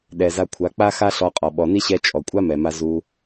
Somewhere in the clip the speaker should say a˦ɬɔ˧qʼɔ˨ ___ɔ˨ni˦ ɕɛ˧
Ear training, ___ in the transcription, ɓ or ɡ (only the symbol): ɓ